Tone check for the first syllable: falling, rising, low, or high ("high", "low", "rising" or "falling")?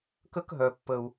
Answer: high